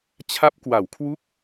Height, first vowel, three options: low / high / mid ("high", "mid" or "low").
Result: low